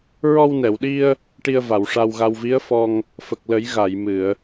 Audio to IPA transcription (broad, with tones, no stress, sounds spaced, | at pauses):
ɹ ɔ˧ w n ɛ˨˩˨ w ɗ i˧ ə̯ | ʈ i˧ ə̯ v a˨˩˨ w ʂ a˧ w ɣ a˧ w v i˧˥ ə̯ f ɔ˧ ŋ | f ə˨˩ k̚ l ə˨˩˦ j ɣ a˨˩˨ j m ɨ˨˩˨ ə̯